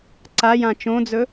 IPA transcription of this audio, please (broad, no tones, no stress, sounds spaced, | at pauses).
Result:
ǀ a j ã t͡ʃ õ d͡z ɵ